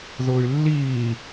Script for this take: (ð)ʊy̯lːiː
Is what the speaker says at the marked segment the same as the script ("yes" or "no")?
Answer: yes